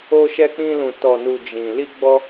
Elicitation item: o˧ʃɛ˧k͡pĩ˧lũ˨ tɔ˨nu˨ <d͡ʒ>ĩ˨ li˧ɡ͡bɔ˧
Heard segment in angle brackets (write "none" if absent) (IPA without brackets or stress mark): d͡ʒ